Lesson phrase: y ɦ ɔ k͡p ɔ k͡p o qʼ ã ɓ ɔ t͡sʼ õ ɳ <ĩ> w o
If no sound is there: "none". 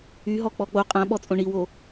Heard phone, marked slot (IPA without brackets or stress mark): i